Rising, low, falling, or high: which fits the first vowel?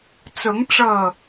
rising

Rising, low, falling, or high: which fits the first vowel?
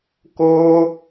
high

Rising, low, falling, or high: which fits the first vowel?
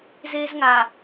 high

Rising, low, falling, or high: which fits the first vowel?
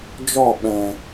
falling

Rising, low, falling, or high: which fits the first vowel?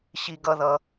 high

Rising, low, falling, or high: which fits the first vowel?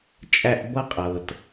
high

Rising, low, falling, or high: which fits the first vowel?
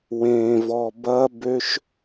low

